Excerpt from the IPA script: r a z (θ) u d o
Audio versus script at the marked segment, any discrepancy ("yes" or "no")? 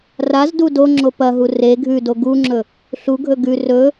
yes